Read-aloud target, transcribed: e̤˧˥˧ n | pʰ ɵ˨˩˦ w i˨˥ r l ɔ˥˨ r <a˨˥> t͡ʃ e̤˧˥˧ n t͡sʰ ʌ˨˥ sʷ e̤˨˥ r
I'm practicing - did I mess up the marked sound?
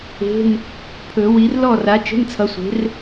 no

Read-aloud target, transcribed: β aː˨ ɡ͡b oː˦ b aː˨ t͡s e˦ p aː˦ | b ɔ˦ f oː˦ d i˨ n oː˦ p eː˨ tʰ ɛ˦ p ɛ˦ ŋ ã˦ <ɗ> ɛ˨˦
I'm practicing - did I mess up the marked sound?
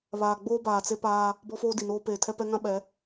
yes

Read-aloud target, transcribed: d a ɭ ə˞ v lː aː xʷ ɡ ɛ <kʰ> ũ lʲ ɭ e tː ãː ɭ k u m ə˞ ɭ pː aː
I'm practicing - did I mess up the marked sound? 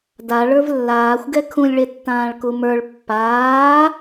no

